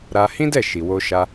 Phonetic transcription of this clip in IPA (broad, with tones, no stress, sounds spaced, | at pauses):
ɾ a˧ h ĩ˦ d ɛ˦˨ ʃ i˨ w o˧ ʃ a˧